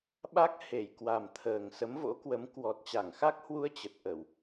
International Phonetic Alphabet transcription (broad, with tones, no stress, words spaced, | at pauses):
ɓa˦˥k̚ he˧˩jkwa˨˩mt̪ʰəː˨˩ŋ sə˨˦mvo̰˧˥kwə˨˦m kwɔ˨˩t̚t͡ɕa˧˩ŋxa˦˥k̚hwu˧ə̯ t͡ɕə˨˩t̚ʔə˧˩˨w